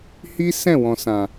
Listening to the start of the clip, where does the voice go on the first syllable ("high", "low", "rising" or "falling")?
high